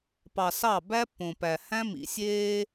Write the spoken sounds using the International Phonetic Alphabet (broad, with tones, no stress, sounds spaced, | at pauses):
p ɑ˨ s ɑ˦˨ b æ˦ pː õ˨ p æ˨ h æ̃˦ m ḭ˨ sʲ eː˦